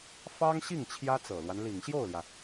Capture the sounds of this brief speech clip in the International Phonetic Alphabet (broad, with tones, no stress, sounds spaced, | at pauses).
f ɑ˥ ŋ ɕ i˥˩ ŋ t͡ɕʰ j ä˥ t͡s ɤ˨˩ l w a˦ n l i˨˩ ŋ ɕ j o˥˩ ʊ̯ l j ä˩